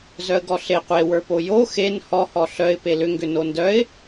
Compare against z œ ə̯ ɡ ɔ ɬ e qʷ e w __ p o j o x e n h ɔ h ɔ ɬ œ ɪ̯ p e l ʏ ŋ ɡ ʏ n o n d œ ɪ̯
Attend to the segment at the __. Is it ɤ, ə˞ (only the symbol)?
ə˞